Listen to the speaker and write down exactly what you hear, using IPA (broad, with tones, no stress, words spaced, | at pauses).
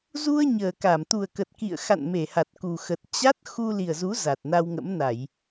zu˧ə̯ ɲəː˨˩ka˧˩m t̪u˨˩ə̯kə˨˩t̚ kḭ˧˨ə̯xa̰˧˨n me˧˩ha˨˩t̚ku˨˩xə˨˩t̚ t͡ɕa˦˥t̚ xu˧ li˨˩ə̯zu˨˦ za˨˩t̚na˧wŋə̰˧˥mna˧˩˨j